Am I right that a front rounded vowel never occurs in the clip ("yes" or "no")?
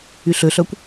no